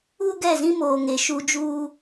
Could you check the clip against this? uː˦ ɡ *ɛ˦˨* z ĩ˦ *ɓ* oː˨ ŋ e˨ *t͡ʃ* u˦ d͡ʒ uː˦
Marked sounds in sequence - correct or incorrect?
correct, incorrect: m, incorrect: ʃ

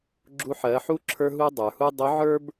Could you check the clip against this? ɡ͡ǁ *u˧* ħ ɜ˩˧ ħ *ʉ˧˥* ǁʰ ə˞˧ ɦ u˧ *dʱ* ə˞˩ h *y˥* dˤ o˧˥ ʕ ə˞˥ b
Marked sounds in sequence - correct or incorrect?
correct, incorrect: u˧˥, incorrect: dˤ, incorrect: u˥

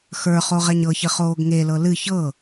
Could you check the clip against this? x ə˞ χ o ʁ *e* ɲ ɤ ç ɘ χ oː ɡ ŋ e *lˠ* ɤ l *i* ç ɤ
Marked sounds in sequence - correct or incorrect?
incorrect: ɛ, incorrect: l, incorrect: ɨ

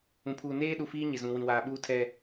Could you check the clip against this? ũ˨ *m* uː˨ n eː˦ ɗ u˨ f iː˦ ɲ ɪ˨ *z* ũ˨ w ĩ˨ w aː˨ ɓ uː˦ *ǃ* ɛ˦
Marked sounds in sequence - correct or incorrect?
incorrect: pʰ, correct, incorrect: tʰ

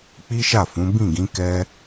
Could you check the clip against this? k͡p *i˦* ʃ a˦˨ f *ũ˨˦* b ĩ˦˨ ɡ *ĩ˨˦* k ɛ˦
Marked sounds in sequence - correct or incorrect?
correct, correct, correct

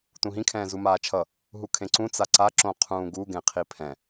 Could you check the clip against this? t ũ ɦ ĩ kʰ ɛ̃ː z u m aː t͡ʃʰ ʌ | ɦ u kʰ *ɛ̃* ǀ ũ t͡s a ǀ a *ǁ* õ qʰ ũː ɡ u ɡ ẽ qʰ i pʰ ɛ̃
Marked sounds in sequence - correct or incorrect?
incorrect: ẽ, correct

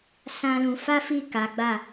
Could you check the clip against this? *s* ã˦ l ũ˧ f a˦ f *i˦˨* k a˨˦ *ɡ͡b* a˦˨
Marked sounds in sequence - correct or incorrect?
correct, correct, correct

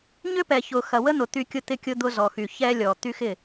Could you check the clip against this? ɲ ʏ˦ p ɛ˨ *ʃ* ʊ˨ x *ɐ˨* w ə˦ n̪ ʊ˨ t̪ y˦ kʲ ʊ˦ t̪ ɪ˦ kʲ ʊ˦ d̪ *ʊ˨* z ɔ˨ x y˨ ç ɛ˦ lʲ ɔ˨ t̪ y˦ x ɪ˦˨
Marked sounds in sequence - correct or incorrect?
incorrect: ç, correct, incorrect: ʊ˦

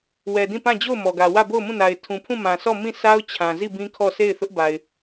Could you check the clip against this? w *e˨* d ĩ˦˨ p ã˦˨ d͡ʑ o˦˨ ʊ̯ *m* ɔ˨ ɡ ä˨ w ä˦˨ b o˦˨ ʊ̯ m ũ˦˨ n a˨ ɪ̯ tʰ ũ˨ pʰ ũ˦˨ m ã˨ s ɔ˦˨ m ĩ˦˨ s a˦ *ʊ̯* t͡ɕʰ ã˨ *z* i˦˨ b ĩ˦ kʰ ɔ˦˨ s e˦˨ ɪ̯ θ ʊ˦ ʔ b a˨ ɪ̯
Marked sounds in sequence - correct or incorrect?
incorrect: ɛ˨, correct, correct, correct

